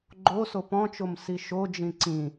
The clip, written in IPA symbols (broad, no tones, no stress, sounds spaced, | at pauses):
ɡ͡ǃ o s o p ɔ̃ t͡ʃ o m s i ʃ o d͡ʒ ĩ ǀ ĩ